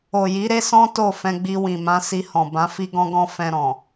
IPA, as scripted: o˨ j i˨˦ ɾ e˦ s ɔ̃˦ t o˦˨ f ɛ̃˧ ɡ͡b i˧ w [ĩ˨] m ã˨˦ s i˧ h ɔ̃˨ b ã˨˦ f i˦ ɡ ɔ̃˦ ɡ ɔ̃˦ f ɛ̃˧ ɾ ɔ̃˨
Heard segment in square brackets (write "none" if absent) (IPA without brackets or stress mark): ĩ˨